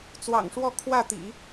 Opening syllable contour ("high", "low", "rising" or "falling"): low